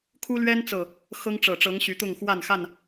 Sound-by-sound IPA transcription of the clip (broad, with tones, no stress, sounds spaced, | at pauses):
kʰ u˦ l ɥ ɛ˦ n t͡s ɤ˨˩ | x ɤ˦ ŋ ʈ͡ʂ ɤ˨˩ ʈ͡ʂ ɤ˨˦ ŋ ɕ y˨˦ t̪ ʊ˥˨ ŋ x w a˥˨ n x a˥˨ n